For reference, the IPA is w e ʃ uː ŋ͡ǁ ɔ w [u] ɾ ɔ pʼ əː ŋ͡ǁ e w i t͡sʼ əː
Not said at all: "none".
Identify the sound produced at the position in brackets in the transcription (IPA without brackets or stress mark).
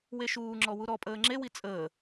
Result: u